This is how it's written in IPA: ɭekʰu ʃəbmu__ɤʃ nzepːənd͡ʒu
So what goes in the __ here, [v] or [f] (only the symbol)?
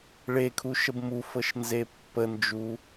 f